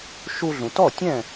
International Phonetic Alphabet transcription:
ʃu˧ɮũ˩tɔ˥˩tʲɛ̃˥˩

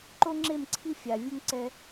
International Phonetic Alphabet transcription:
ǃo˦ŋ͡ǁe˦˨mǀʰi˦ fʲa˨ vʲu˦ŋǀɛ˦

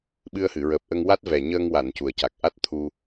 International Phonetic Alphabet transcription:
ɓɨ˧ə̯hɨ˨˩˨ɹəː˨˩p̚ʔə˧ŋ wa˦˥t̚vɛ˨˩ɲəː˧ŋ wa˨˩˨n cu˨˩ə̯ca˨˩k̚ ʔa˦˥t̚ t̪ʰu˧

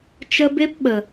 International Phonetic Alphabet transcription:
t͡ʃə˧be˦p ɓə˨

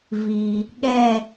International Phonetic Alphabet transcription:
vi˩ | ɠɛ˦˨

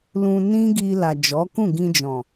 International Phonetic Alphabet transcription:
lũ˧nĩ˦ɡi˧la˨ d͡ʒɔ˨˦kũ˦˨ɡĩ˧ d͡ʒɔ̃˨

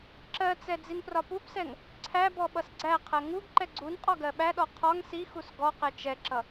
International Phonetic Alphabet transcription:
ǁɜt͡sɛ d͡zinprɒpupsɛŋ | ǀʰæbɔ ɓʌsɡ͡ǀæqʰɜ ŋuɡ ǃɛɡ͡ǀunqʼɒ ɡɜɓæɗɔ qʰɒŋ sixus ɡɔ qɛt͡ʃɛǁʌ

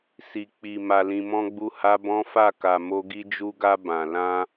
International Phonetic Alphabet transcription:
si˨k͡pi˨ ma˨lĩ˨mɔ̃˧ ɡ͡bu˦ha˦ bɔ̃˦fa˦˨ ka˨mo˧ ɡi˧d͡ʒu˧ɡa˧ bã˨ lã˧

